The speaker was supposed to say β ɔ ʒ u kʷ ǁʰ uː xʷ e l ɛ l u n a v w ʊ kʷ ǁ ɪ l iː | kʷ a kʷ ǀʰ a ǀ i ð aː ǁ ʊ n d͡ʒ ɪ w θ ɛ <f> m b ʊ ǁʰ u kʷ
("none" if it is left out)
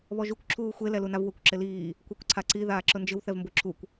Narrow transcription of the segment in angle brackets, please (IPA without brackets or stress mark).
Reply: v